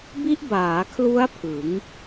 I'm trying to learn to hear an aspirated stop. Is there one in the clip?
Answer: yes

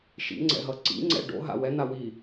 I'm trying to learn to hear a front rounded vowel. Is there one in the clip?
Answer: no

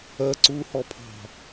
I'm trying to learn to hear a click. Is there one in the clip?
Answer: yes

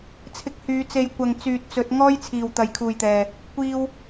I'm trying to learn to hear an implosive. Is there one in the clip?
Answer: no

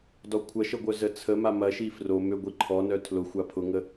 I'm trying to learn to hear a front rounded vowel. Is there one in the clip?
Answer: yes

